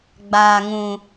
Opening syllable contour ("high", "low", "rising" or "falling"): low